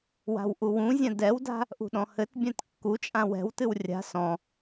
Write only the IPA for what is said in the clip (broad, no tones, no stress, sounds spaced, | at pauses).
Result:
w a̤ w ʔ u w ũ zʲ ã d ɛ w d a̤ | ʔ ṳ ɗ ɔ̃ h ɘ t bʲ ã t kː u t͡ʃʼ ã w ɛ̤ w t ɨ w rʲ a̤ s ɔ̃